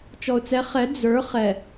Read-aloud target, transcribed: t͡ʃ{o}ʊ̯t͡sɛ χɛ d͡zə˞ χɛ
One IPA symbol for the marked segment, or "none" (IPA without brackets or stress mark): ɔ